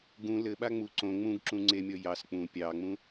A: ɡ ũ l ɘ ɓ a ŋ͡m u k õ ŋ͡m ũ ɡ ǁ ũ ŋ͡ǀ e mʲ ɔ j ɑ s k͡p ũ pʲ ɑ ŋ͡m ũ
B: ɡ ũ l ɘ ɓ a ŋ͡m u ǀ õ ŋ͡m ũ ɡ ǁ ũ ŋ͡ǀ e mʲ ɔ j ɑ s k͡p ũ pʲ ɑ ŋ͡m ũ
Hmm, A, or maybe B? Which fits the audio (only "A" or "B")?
B